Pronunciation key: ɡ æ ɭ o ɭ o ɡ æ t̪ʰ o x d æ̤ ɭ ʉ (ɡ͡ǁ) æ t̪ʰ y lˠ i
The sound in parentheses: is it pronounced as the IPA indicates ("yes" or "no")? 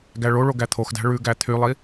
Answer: no